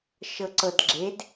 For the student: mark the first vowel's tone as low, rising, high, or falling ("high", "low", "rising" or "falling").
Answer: low